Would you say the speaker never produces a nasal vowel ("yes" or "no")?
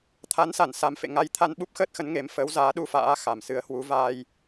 yes